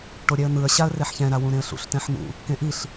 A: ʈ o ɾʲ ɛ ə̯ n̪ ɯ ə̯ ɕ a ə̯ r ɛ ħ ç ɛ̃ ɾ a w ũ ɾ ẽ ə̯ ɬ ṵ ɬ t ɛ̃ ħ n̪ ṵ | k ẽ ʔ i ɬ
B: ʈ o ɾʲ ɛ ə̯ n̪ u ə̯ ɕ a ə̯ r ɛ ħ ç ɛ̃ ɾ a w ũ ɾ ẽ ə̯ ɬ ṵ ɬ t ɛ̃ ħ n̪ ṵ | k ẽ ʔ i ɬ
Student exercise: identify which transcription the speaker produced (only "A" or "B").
A